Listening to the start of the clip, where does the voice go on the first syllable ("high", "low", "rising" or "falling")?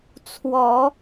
low